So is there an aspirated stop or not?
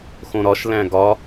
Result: no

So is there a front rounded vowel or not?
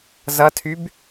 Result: yes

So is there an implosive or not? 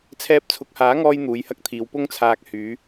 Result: no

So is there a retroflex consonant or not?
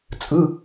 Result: no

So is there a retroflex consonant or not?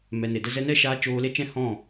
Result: no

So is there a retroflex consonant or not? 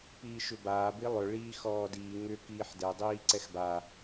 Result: yes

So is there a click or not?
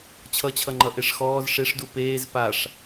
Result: yes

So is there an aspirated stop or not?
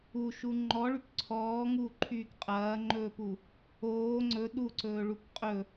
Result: yes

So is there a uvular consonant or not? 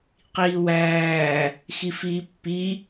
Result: yes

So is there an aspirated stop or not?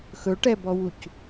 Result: no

